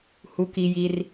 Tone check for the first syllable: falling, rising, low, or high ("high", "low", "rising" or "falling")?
low